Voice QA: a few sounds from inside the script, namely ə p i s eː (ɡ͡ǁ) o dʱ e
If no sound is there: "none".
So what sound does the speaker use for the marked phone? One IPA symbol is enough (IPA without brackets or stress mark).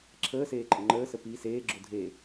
ɡ͡ǁ